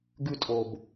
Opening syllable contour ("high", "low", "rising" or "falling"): low